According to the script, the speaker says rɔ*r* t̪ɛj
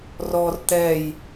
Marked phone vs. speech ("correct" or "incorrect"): correct